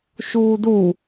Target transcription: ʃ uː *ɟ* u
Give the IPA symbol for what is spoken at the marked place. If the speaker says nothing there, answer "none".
d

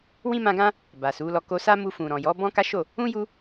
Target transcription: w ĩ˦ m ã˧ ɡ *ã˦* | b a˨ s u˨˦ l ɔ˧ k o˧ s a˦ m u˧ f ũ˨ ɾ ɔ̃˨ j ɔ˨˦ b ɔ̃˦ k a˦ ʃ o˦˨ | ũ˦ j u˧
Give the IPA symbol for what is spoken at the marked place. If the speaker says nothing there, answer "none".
ã˦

